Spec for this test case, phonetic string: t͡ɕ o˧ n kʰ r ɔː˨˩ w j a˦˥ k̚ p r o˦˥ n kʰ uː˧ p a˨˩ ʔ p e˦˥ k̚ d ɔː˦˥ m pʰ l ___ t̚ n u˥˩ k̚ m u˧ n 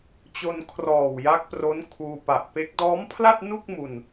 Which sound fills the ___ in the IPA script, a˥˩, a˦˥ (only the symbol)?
a˥˩